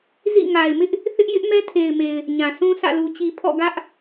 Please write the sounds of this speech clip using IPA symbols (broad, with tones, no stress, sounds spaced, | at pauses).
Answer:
z ḭ˦˨ ŋ a˨ ɪ̯ m ɪ˦ ʔ | θ ɪ˦ ʔ j ɪ˦ ʔ m ɛ˦ tʰ e˨ ɪ̯ m e˨ ɪ̯ | ɲ ã˨ sʰ ũ˦ s ä̰˦˨ l u˨ t͡ɕ i˨ pʰ ɔ̰˦˨ ɡ ä˦ ʔ